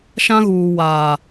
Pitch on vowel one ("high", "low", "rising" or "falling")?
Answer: high